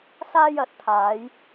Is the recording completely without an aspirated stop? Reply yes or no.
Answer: no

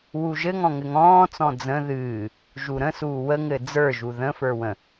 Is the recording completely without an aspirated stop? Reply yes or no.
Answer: yes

